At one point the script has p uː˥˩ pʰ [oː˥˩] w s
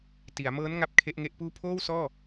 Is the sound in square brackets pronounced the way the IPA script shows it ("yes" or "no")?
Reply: yes